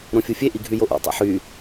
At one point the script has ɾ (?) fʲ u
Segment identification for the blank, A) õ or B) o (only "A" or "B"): A